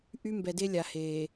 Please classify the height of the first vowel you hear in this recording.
high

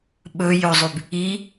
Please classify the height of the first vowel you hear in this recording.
mid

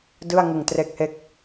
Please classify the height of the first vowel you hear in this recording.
high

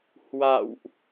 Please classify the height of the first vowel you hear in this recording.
low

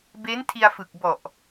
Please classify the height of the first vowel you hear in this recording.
mid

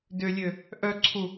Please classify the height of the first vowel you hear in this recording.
high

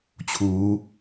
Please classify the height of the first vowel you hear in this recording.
high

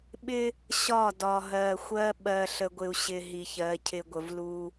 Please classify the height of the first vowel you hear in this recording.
high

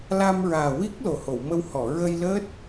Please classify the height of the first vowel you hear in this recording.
low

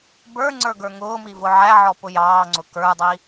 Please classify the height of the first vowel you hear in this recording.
mid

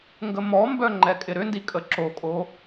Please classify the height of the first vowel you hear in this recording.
mid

